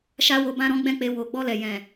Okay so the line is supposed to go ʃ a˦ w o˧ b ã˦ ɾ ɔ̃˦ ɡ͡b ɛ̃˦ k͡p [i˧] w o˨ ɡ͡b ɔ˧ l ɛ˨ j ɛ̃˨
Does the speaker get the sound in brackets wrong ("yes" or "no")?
yes